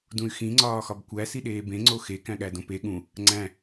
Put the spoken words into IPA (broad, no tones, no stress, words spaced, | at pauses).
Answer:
dũy̯xĩ ŋ͡ǀɒːxɒbkʷæ siɗeːbẽ ŋ͡ǀoxe kæ̃ɠædõpe ɠũ | ŋ͡ǀæ̃